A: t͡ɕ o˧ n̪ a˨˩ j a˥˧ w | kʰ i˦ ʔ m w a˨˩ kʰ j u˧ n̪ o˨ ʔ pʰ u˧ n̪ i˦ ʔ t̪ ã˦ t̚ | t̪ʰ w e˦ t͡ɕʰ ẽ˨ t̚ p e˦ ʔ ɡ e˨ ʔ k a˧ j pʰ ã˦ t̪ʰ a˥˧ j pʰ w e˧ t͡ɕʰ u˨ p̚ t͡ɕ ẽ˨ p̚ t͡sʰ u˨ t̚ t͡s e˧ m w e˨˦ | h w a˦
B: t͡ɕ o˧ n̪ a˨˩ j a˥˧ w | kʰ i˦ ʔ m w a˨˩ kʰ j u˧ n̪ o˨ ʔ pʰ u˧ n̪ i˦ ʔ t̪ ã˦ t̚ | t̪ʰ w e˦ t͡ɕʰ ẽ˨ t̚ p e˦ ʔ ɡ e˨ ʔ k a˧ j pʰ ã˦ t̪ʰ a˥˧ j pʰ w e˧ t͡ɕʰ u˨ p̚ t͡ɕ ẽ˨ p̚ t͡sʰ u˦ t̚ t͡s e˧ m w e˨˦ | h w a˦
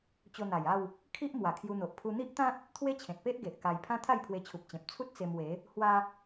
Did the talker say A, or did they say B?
B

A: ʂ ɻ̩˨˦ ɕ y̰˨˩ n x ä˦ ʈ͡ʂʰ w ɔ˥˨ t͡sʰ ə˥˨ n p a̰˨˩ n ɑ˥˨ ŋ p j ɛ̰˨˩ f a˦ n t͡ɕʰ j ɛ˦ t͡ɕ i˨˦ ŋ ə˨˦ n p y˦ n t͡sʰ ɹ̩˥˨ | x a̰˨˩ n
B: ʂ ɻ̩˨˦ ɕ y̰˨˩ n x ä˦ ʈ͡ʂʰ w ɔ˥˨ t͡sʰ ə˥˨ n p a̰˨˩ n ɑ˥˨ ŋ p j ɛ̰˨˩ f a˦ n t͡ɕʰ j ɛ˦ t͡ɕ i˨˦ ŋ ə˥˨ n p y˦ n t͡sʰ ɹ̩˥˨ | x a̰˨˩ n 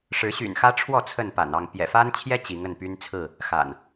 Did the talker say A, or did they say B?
B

